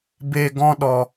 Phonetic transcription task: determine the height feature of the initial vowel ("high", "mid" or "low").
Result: mid